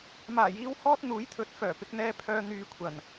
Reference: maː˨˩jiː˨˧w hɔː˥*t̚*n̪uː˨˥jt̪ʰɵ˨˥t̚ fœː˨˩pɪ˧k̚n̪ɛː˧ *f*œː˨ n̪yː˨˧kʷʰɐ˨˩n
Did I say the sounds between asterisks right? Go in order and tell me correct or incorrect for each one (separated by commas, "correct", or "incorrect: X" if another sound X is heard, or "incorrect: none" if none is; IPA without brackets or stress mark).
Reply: correct, incorrect: pʰ